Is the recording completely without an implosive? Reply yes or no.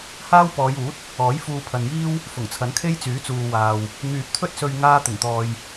yes